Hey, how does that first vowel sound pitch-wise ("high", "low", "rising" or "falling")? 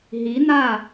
rising